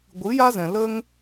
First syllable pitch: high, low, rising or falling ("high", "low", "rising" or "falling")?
rising